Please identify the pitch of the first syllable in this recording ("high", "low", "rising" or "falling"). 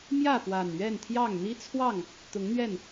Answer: falling